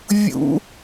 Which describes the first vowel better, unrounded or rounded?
rounded